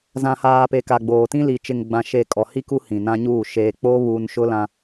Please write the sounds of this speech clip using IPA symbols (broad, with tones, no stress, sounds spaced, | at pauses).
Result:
z ã˨ h aː˨ p e˨ k a˨ ɡ͡b oː˨ t ĩ˦ l i˨ t͡ʃ ɪ˨ ŋ ɡ͡b ã˨ ʃ e˨ kʼ ɔ˨ h i˦ k u˦ h ĩ˨ n ã˦ ɲ uː˦˨ ʃ eː˨ k͡p o˦ β uː˨ n ʃ ʊ˦ l ã˦